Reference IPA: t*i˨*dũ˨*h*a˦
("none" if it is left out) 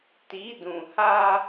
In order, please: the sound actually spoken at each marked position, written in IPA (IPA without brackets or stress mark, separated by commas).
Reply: i˨˦, h